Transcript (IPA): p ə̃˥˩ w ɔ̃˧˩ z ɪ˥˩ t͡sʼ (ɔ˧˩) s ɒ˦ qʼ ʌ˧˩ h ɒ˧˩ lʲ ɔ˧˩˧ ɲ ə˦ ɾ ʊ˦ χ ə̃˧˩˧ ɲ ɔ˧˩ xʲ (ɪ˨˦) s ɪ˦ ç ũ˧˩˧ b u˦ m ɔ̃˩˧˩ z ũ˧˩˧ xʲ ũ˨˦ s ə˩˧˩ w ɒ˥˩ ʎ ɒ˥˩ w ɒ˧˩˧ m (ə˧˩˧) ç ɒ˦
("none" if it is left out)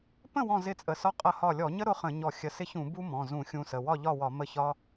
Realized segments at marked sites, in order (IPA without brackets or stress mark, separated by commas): ə˧˩, ə˨˦, ə˥˩